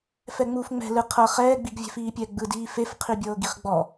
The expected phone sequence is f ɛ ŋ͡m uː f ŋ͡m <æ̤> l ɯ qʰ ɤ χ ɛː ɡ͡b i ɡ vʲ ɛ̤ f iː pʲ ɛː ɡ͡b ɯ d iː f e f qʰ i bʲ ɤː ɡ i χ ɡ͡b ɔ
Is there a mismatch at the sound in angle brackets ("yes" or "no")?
yes